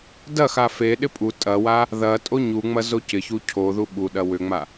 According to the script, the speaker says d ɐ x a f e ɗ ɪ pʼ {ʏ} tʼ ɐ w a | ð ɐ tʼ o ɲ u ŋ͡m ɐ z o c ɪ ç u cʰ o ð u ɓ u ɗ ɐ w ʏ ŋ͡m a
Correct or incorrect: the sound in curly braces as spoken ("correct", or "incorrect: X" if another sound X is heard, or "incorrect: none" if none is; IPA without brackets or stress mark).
incorrect: u